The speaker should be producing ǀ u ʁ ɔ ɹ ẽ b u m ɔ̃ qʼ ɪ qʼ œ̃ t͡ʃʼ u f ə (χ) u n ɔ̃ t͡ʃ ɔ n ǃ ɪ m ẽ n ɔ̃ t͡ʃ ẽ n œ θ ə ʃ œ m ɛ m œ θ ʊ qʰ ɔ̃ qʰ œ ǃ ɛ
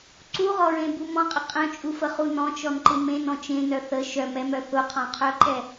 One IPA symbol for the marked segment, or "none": χ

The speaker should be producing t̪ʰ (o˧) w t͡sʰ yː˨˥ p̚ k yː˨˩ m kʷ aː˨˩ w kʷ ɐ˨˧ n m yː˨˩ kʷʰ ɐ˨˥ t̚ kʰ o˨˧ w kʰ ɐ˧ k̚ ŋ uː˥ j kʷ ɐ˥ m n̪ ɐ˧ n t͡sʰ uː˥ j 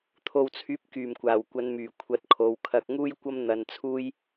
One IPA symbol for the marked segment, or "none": o˨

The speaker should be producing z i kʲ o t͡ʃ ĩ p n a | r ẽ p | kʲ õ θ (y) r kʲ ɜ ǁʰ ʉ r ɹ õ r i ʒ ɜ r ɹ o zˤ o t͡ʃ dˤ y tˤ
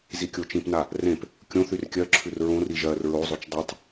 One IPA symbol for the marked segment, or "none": y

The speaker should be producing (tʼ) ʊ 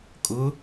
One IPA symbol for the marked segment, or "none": kʼ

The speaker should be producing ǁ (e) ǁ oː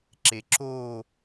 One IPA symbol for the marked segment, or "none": e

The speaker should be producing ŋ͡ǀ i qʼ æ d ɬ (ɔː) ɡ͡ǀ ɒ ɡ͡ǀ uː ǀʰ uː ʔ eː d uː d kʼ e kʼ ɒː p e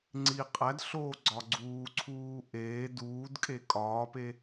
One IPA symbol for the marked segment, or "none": oː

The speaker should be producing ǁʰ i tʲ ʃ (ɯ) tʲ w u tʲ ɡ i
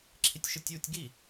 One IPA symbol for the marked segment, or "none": ɯ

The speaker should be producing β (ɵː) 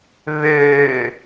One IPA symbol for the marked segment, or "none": øː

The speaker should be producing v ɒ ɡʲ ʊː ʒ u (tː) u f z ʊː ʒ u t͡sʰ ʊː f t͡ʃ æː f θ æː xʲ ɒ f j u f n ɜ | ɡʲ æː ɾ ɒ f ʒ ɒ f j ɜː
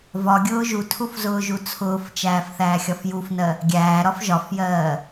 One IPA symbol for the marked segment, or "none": tʰ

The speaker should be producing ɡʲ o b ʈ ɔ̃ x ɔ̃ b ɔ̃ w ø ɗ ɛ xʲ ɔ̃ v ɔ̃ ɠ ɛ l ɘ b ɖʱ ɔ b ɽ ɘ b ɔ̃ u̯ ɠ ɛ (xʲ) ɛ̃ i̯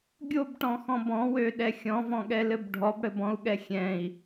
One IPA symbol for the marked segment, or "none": xʲ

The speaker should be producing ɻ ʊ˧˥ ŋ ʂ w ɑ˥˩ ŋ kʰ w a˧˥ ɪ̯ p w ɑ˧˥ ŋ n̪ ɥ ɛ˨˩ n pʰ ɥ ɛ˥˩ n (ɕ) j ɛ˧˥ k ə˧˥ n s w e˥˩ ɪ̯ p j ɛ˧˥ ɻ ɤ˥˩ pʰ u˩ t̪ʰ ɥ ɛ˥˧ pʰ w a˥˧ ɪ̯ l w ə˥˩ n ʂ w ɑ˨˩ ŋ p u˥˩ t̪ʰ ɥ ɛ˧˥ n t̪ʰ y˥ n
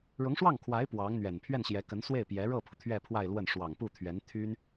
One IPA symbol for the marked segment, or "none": ɕ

